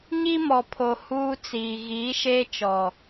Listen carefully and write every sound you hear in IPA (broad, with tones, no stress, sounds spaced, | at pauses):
ɲ i˦ m ɔ˨ pʰ o˨ h uː˦ t͡s iː˨ ɣ iː˨˦ ʃ e˦ t͡ʃ ɔ˨